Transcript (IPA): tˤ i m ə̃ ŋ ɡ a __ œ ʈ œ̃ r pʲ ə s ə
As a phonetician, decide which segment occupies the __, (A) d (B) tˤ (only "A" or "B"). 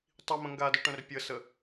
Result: A